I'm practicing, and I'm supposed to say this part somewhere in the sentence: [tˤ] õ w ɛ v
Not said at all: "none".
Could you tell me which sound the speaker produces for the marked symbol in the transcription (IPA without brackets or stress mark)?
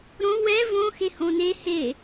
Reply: ɾ